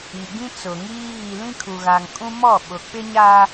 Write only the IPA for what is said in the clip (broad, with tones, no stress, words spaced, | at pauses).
i˨ɡĩ˦t͡sʊ˨ŋiː˦ ɣi˦ lĩ˦kʰu˨ɣa˨ŋ kʼũ˦mɔ˦˨ ɓʊ˨k͡pɪ˦ɲa˦